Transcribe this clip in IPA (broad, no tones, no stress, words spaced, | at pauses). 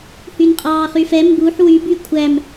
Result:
hynqʼɑːχyfɛ mbuħ wyby kʷʰæm